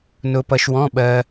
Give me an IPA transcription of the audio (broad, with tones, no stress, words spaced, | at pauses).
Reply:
nʊ˧ pʌ˧ʃwɔ̃˧˥˧ɓɜ˧